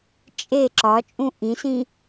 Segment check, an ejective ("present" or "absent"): present